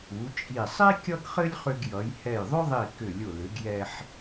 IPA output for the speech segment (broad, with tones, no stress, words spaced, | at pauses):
u˩˧t͡ʃʼi˧˩ sˤi˥ kʲʌ˥ɡχɘ˥lʲχʏ˧ɡjʌ˩˧j hɛ˧˩jðˤʏ˥ðˤi˧˩ kʏ˧˩lʲʊ˧˩ lʏ˩˧ɡjɛ˧ħ